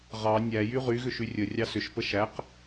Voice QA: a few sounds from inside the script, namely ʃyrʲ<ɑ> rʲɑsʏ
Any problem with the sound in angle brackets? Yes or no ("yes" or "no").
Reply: yes